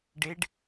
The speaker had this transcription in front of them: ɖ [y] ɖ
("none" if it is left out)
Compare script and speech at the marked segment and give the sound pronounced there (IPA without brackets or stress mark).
e